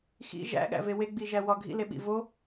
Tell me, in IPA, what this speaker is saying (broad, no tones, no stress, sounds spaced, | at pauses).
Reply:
x ḭ ʒ æ̰ ɠ æ̰ v e w e ɡ͡b i ʒ æ w ɒ ɡʱ ḭ l e ɓ ḭ v o